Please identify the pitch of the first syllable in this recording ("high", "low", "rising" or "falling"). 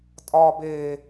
high